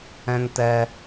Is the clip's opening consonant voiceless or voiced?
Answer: voiced